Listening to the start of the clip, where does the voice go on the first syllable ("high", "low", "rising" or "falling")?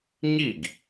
falling